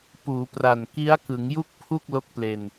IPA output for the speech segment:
p uː˩˦ p r a˨˩ n k i˦˥ a̯ k ɯ˩˦ ŋ j u˥˩ k̚ pʰ u˥˩ k̚ l o˦˥ k̚ p l e˧ n

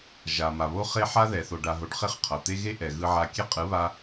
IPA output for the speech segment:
ʒ a˨ m a˨ β o˦ χ e˦ ħ a˦ ð ɛ˨ θ o˨ ɖ a˨ ɦ o˨ ɖ χ e˦ χ qʰ ʌ˨ t̪ e˦ ɣ e˦ ʔ ɛ˨ ɣ ɯ˧ ʕ a˧ kʲ e˦ qʼ ɯ˨˦ β a˧

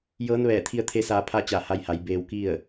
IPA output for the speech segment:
j ɤː˧˥ n ʋ ɛː˧˩ t̪ʰ i˧ ə̯ t̪ʰ e˧˥ s aː˧ pʰ a˥˨ t͡ɕ a˧˩ h a˧ j h a˩˧ j b eː˧ w k i˥˨ ə̯

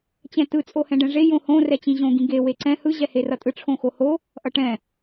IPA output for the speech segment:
t͡ɕ ɛ̃ t ɯ t͡sʼ o h ɛ̃ ɖ ɛ̃ ʐ e j õ h õ r ɛ t͡ɕ ĩ ʑ õ ɡ ĩ ɡ e w e ǀ ɛ̃ h ɯ ʑ ɛ h e r ʌ tʼ ɯ ʈ͡ʂʰ õ x o h o | ʔ ʌ ʈ ɛ̃

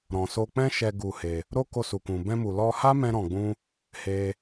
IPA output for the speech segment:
ɾ ɔ̃˨ s o˧ k͡p ɛ̃˦ ʃ ɛ˧ ɡ u˧ h e˧ | ɾ o˦ k o˧ s u˨ k ũ˨ b ɛ̃˧ m u˨ l ɔ˧ h a˦ m ɛ̃˦ ɾ ɔ̃˧ ɡ͡b ũ˦ | h e˦

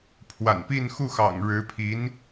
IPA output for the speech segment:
pʰ w a̰˨˩ n p i˥˧ n x u˥˩ x ɑ̰˨˩ ŋ ɻ ɻ̩˧˥ pʰ i˧˥ n

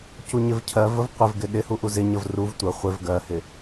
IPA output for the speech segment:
c u ɲ ɪ v cʰ ɜ v ə v qʷ ɪ v ɡ ɪ ɗ ɪ h u ʔ u z ɪ ɲ ə v r u v tʷ ə χʷ ɪ v ɡ ɜ h ɪ

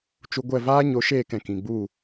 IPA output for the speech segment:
t͡ʃ u˧ ɡʷ ɛ˦˨ v aː˦ ɲ o˨˦ ʃ eː˦˨ k ɛ̃˨ k ĩ˨ ɡ͡b u˦˨

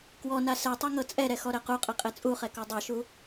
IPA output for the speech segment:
k w ɔ n a s ɛ tˤ ɛ ŋ ɤ t͡sʼ ɛ ɾ ɛ x ɔ ɾ ɛ q u qʼ ɛ qʼ ɛ t͡sʼ u χ ɛ k ɔ dˤ ɛ ʃ u

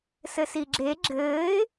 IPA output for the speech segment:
s ɘ s i ɡ͡ǁ e ɡ͡ǁ ɘː ɪ̯

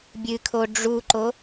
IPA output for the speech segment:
bʲ ɨ kʰ o ɖ͡ʐ u ǃ o

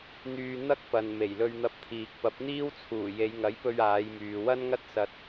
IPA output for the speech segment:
n̪ yː˧ n̪ ɐ˥ k̚ p ɐ˨ n m e˨˩ j l ɵ˧ ɥ n̪ ɐ˧ p̚ t̪ʰ iː˨ k̚ p ɐ˨˥ p̚ n̪ iː˥ w t͡sʰ uː˨˩ j e˨˧ j ŋ ɐ˨˥ j p ɵ˧ ɥ aː˨˧ j m yː˨ w ɐ˥ n ŋ ɐ˥ t̚ s ɐ˧ t̚

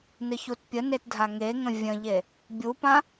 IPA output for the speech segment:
n ɨ ç u t pʲ ə n e t dʱ a ŋ e ŋ ə̃ vʲ ə̃ ʎ e | bʲ u p ã

